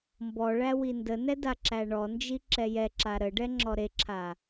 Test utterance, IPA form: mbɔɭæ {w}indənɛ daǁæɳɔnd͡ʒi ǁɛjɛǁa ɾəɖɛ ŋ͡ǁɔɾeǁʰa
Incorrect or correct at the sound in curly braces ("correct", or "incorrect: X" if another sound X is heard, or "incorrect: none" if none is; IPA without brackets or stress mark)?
correct